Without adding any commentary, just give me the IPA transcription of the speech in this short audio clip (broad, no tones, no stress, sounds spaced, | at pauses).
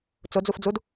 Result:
t͡s ʊ d͡z u f d͡z u d